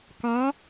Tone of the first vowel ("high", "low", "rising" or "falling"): rising